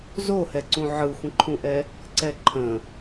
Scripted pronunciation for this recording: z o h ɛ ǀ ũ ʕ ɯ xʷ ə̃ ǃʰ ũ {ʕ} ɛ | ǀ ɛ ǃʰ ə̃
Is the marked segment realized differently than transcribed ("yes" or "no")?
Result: yes